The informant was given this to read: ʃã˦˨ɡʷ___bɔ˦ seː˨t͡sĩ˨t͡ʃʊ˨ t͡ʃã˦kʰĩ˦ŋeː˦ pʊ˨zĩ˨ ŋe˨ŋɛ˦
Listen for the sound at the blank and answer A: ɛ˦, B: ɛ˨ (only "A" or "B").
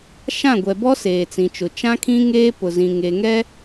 B